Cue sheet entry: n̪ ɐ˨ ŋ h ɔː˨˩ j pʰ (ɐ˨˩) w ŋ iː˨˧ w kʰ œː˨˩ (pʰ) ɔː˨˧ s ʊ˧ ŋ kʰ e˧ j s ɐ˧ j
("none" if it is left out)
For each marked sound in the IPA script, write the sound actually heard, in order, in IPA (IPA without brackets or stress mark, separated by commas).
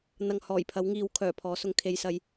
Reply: ɐ˨˥, pʰ